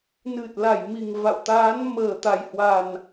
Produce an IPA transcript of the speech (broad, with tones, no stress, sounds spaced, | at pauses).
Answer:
n ɨ˨˩ t̚ l a˧˩ j m i˨˩ ŋ v a̰˧˨ w t̪ aː˨˦ n m əː˨˩ t̪ a˨˩ j h w a˨˩ n